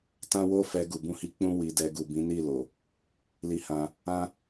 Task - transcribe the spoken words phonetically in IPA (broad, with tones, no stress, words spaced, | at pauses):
tã˦wo˦fɛ˧ ɡu˨bũ˧hi˧ k͡pũ˦ wi˧dɛ˧ ɡu˨bĩ˨˦ ni˦˨lo˨ | li˧hã˧ | ã˦